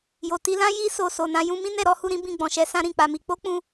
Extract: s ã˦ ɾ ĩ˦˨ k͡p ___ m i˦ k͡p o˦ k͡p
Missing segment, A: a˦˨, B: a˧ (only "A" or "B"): B